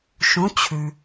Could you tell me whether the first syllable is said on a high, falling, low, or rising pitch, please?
rising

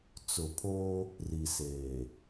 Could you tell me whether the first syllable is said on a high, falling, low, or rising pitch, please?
low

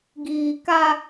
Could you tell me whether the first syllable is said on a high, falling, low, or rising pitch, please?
low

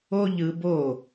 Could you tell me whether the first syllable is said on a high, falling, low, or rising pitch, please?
high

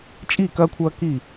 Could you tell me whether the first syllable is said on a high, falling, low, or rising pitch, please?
falling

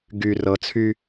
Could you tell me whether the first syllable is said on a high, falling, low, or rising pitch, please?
low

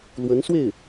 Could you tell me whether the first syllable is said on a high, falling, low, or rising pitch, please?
rising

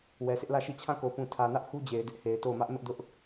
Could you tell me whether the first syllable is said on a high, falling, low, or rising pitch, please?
low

